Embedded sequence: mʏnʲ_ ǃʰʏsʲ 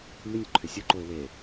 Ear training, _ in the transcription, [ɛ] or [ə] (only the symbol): ə